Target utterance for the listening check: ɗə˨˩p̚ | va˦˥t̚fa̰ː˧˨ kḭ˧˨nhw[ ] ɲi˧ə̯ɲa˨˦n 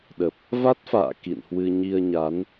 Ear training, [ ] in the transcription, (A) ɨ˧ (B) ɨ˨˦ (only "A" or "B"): A